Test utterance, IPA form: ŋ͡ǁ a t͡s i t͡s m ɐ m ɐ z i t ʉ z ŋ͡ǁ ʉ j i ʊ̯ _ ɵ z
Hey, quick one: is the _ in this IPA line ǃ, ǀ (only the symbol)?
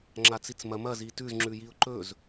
ǃ